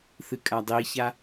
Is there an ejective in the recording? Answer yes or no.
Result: yes